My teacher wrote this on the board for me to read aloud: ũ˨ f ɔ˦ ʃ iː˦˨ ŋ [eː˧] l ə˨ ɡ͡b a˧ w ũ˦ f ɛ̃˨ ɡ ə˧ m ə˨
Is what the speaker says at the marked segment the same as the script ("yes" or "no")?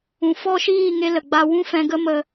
no